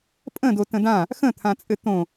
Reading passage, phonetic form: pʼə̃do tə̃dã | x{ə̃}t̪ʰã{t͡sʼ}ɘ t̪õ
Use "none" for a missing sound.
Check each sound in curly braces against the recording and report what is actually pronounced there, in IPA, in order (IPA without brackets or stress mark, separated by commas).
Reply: ə̃, t͡sʼ